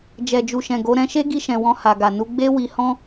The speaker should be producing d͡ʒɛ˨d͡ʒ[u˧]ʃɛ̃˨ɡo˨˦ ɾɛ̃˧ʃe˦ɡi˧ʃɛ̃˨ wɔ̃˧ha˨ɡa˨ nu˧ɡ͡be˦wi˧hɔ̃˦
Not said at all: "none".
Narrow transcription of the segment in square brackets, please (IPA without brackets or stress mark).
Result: u˨